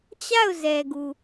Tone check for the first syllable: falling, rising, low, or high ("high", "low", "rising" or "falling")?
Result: falling